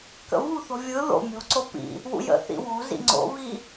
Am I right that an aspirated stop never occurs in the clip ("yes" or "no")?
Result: yes